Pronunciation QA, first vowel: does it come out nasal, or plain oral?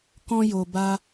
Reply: nasal